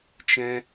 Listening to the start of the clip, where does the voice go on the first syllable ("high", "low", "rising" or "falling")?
high